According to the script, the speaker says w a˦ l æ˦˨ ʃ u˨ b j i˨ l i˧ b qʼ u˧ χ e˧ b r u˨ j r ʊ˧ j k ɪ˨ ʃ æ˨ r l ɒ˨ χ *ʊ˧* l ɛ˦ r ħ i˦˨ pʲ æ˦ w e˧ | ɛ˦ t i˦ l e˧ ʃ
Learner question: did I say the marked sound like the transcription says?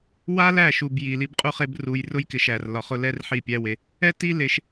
yes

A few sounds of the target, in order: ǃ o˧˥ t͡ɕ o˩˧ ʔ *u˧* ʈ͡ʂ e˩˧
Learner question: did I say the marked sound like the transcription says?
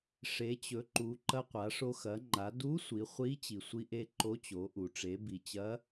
no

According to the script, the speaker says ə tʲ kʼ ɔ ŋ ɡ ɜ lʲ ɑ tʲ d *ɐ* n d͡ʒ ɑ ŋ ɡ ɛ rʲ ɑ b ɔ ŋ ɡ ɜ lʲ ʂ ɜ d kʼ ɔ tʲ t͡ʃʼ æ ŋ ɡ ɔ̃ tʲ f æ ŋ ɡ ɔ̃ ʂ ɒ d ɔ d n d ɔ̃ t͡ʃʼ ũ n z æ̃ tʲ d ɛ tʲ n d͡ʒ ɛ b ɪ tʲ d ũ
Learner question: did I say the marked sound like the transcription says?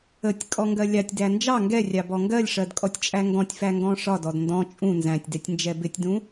no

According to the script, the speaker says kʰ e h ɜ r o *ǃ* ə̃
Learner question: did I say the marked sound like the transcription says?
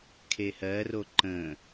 yes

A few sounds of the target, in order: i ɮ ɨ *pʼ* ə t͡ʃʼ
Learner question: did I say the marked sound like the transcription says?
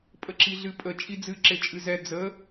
yes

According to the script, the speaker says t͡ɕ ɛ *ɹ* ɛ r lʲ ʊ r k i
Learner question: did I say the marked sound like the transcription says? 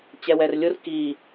no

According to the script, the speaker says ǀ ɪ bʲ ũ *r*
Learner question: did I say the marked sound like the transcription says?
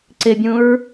no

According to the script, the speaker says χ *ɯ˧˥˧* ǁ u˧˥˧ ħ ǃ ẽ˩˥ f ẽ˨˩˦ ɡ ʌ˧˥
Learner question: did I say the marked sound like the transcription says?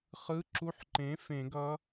yes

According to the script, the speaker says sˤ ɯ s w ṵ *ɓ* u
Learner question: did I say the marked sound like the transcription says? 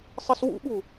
yes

